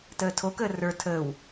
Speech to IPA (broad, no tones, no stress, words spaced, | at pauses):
təːtʰokəː rə˞ tʰəːw